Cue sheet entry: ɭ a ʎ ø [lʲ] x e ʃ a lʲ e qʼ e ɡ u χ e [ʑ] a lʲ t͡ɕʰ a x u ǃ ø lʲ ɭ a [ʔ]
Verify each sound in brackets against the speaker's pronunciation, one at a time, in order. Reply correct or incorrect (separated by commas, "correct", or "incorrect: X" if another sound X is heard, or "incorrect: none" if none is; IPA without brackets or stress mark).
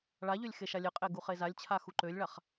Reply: correct, incorrect: z, incorrect: χ